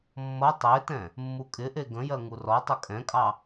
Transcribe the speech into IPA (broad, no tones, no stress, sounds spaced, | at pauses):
mː ʌ tˤ e t ɛ̃ | mː u kʼ ɪ ʔ e ɡ ə̃ j ɜ ŋ u r ɔ tˤ ə kʼ ɛ̃ kʼ ɑ